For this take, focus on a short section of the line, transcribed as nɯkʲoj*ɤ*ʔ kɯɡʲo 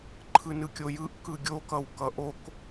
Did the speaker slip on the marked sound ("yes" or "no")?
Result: yes